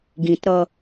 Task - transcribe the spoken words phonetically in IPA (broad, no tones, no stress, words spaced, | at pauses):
ɡĩtɾʌ